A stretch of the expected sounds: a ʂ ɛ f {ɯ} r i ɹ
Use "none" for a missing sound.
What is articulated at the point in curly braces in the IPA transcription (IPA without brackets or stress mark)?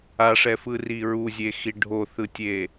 ɯ